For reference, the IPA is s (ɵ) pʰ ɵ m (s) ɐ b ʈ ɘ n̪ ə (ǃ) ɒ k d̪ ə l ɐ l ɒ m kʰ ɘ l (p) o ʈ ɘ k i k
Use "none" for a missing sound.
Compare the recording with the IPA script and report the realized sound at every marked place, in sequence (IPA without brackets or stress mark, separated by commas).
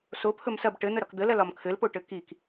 o, s, ɾ, p